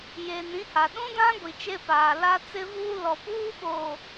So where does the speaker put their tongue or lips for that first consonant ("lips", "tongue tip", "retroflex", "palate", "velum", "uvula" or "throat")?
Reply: palate